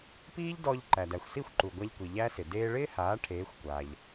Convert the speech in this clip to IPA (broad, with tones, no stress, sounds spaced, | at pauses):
p iː˥ ʎ d ɔː˧ ʎ ǃ æ˩ d æ˩ xʷ s i˥˩ xʷ ǃ u˩ ɡʷ æ˧ ʎ kʷ i˩ ʎ æ˥ s ɪ˩ d eː˧ ɭ ɪː˥ h aː˩˥ ʈʰ eː˩˥ xʷ kʷ aː˩ ʎ